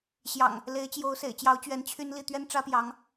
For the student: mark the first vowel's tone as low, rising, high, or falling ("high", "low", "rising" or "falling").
low